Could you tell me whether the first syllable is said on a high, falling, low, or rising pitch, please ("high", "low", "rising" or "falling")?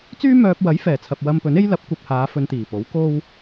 high